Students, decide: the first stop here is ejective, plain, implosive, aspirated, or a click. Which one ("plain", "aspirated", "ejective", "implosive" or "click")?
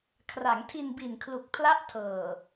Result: aspirated